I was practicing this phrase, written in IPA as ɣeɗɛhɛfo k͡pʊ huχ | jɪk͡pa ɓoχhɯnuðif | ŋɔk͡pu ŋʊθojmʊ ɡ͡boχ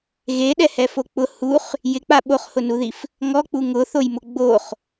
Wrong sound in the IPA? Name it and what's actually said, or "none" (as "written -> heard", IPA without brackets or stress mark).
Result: ɯ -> ʊ